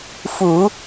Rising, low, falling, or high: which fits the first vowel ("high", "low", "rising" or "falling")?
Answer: low